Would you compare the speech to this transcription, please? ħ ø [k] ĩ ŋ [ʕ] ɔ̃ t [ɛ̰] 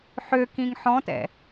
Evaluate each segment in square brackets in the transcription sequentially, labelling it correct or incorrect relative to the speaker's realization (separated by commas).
correct, incorrect, correct